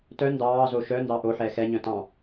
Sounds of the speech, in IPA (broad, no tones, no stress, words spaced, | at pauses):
tœ ndɑːzo ʃœ ndɑʔoħɛː xɛɲœ̃ tɑ̃